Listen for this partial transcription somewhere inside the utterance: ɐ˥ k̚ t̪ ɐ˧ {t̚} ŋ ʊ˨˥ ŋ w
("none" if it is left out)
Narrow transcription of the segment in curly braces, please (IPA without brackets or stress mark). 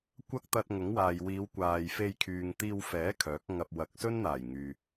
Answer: t̚